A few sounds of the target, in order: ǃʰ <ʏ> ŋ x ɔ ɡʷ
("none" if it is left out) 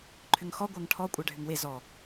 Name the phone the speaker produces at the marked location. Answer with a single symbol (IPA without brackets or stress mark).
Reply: ʏ